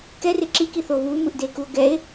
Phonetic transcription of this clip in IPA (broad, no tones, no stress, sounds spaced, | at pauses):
k ɛ r e ǁ i k i θ oː β uː m ɯ ʔ d eː k u o̯ ɡ ɛ e̯